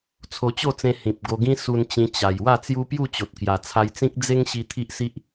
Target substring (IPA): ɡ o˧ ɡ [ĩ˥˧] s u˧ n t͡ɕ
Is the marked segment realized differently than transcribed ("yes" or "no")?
yes